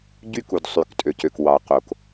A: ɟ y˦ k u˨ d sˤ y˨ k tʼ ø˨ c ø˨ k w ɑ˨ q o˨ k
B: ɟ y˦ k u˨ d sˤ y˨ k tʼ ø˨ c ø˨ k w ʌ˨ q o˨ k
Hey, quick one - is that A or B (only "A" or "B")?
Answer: A